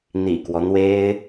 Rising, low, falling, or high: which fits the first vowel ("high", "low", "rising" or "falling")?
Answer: low